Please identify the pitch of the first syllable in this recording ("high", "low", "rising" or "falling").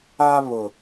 high